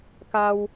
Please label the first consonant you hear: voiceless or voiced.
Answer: voiceless